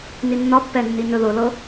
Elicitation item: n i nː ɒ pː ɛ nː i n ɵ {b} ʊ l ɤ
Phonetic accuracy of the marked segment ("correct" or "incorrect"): incorrect